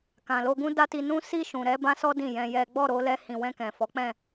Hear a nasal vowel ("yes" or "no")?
yes